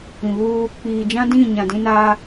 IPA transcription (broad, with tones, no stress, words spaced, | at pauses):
ĩ˨βuː˦ | k͡piː˨d͡ʒã˦ dĩ˦˨ ɲã˨dĩ˦ naː˦